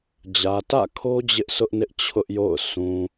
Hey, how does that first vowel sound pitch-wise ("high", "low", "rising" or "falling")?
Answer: low